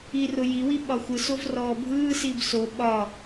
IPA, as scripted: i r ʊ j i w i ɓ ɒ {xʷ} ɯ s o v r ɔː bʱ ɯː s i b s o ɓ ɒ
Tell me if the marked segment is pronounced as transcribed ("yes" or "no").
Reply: yes